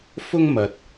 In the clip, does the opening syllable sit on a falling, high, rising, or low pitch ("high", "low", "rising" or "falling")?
high